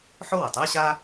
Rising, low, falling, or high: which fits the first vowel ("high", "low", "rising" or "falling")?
high